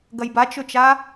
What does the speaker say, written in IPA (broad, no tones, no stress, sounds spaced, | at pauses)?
ɡ ɐ j b a t͡ʃ ɵ t͡ʃ a